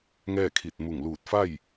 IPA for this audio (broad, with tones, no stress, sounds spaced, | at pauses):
ŋ ɛː˥˨ kʰ i˧˩ t̚ m u˧˩ ŋ l uː˧˩ t̚ f a˥˨ j